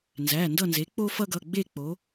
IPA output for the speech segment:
n z æ˩˧˩ n d ʌ˦˨ n z e˩˥ k͡p o˦ f ʌ˦ ɡ ʌ˩˧˩ ɡ͡b e˦˨ k͡p o˩˧

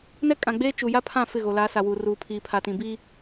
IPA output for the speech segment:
n ɛ˦ kʼ ã˨ ɡ͡b eː˦ t͡ʃ u˨ j a˦ pʰ ã˦˨ f ɪ˦˨ ɣ o˨ l a˨˦ s a˨ w uː˨ r uː˨ pʰ iː˨ pʰ a˨ t ĩ˨ b i˦

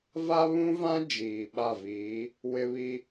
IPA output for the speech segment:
v a˦ β ũ˦ v ã˦ d͡ʒ iː˨ ɓ a˦˨ v iː˨˦ | w ɪ˦ β i˦

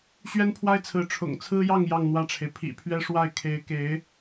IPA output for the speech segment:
ɕ ɥ ɛ˥ n pʰ w a˥ ɪ̯ t͡sʰ ɹ̩˧˥ ʈ͡ʂʰ ʊ̰˨˩ ŋ t͡sʰ ɹ̩˥ j ɑ˥˧ ŋ j ɑ˥˧ ŋ n̪ w ä˥˩ ʈ͡ʂʰ e˩ ɪ̯ pʰ ḭ˨˩ pʰ ɥ ɛ˥ ʂ w a˥˩ ɪ̯ kʰ e˧˥ ɪ̯ k e˧˥ ɪ̯

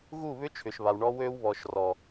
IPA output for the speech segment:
ɣ u˦˨ β ʏ˦ t͡ʃʰ ʏ˨ ʃ β a˨ w ɳ ɔ˦ w øː˦ w β ɔː˨ ʃ r ɔ˨

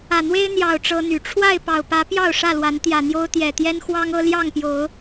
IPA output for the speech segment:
ä˨˩ n̪ w e˦ ɪ̯ n̪ j ɑ˨˩ ʊ̯ ʈ͡ʂ ɤ˦ n̪ y˨˩ ʈ͡ʂʰ w a˥˨ ɪ̯ p ɑ˨˩ ʊ̯ p ä˨˦ p j ɑ˥˨ ʊ̯ ʂ ä˥˨ l w a˨˦ n t̪ j ä˨˩ n̪ j o˦ ʊ̯ t̪ j ɛ˨˩ t̪ j ɛ˦ n x w ɑ˦ ŋ ɤ˦ l j ɑ˥˨ ŋ p j o˨˦ ʊ̯

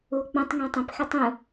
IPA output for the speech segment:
u o̯ k͡p õ tˤ ŋ ẽ tˤ ẽ p x ɛ tˤ ũ

